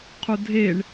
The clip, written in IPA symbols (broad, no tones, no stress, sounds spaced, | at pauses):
qʰ u dʱ e ɳ